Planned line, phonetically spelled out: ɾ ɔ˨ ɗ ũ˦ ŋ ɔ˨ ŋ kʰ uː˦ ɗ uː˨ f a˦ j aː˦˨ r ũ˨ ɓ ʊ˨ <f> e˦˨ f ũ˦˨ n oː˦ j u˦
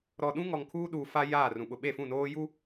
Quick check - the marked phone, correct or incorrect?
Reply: incorrect